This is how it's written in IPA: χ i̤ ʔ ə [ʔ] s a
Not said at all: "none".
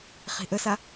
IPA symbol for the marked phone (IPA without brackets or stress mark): none